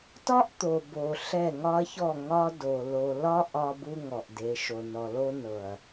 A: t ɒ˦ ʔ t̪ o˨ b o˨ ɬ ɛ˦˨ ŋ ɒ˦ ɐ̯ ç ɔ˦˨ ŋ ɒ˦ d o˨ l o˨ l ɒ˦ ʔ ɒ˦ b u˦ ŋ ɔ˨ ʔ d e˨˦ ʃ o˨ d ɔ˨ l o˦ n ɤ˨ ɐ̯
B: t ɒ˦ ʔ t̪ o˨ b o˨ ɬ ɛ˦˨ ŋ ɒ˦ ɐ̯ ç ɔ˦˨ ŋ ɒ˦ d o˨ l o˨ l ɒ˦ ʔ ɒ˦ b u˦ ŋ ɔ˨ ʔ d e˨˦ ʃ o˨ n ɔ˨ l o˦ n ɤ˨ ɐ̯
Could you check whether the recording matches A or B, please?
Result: B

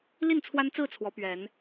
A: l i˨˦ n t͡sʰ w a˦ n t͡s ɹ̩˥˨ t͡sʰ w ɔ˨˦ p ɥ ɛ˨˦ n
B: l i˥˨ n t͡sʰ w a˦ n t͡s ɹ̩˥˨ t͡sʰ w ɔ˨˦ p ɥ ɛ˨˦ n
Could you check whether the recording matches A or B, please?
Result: B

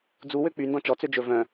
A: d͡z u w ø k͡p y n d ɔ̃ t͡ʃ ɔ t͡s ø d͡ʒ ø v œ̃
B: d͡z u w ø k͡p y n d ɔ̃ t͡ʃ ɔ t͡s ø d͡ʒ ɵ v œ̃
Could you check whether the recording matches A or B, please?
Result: B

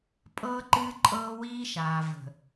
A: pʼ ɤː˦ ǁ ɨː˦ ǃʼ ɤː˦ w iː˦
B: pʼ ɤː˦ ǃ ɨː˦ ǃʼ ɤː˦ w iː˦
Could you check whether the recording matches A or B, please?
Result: B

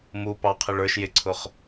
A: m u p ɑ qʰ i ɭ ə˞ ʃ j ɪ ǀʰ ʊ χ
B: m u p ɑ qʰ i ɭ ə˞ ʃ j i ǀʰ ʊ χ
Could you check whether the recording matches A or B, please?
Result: A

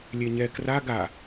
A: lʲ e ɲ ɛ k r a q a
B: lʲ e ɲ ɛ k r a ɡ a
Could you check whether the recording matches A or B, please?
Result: B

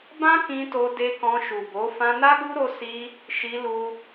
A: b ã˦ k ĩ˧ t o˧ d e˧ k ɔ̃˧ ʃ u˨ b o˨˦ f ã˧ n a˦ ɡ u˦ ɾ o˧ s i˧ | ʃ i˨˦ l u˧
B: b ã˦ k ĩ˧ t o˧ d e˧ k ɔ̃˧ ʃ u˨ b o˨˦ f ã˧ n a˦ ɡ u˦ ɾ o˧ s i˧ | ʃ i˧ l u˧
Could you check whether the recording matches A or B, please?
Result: B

